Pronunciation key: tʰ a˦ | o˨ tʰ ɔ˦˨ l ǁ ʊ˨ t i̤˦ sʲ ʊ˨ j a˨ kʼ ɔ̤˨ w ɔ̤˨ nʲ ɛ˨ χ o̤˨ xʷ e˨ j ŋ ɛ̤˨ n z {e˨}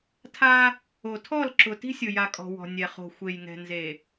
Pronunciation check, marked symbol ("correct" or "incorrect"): correct